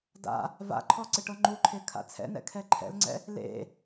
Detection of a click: present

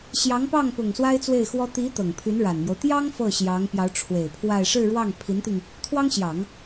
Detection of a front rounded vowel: present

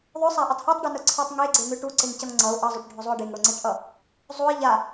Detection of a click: present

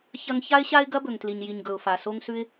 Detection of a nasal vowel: absent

